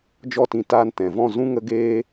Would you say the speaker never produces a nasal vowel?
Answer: no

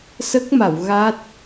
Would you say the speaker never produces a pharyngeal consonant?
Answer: yes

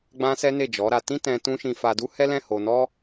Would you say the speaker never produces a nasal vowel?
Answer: no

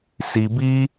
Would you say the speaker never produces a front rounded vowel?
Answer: yes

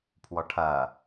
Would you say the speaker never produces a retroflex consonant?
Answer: no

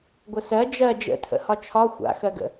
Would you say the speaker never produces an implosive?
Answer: yes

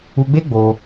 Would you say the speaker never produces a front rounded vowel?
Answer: yes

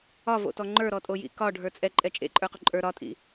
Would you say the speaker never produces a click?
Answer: no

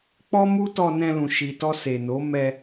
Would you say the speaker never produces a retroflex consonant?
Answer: yes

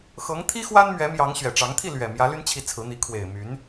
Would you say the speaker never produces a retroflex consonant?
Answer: no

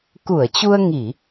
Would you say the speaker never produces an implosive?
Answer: yes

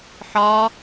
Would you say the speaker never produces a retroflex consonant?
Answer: yes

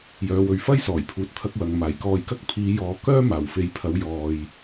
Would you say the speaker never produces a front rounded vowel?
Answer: no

